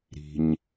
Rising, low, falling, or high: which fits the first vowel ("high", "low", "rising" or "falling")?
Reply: low